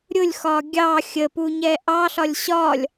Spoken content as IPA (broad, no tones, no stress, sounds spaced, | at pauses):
ɾʲ ʊ lʲ x ɒ ɡʲ ɑ xʲ ə p u ɲ ɛ ʔ ɑ ɬ ɒ lʲ ɕ ɒ lʲ